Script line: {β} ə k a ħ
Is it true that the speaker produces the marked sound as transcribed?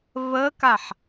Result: yes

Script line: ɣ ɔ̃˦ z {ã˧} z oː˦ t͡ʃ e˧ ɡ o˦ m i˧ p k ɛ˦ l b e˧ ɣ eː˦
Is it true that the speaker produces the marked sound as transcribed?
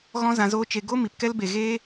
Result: yes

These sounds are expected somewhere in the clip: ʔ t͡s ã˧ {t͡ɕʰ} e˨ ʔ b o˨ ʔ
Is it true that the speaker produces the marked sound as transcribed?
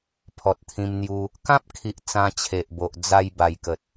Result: yes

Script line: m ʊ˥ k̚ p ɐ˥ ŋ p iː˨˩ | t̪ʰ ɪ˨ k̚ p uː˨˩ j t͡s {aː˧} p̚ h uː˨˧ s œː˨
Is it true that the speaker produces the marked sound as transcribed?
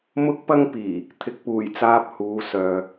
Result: yes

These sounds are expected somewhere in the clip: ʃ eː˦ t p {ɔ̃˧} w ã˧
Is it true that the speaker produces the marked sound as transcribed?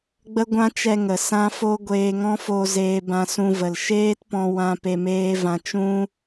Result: yes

